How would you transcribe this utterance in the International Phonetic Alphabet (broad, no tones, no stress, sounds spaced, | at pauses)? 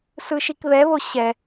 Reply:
s ɯ ʃ i k β ɛ β o ɕ ɛ